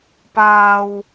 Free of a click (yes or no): yes